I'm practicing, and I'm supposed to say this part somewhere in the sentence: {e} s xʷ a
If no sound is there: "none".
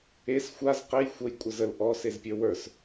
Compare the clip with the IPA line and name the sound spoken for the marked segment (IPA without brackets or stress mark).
e